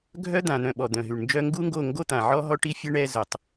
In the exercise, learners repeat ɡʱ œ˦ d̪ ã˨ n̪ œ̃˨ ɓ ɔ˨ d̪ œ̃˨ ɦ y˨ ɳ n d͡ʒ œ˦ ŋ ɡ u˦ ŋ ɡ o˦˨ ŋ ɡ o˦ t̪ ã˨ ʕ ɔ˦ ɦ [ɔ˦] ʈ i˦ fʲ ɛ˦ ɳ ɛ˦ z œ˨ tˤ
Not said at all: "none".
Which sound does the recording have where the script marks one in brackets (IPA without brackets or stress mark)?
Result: ɔ˦